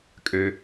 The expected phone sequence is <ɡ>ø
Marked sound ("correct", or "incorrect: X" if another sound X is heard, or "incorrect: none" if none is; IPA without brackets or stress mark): incorrect: kʼ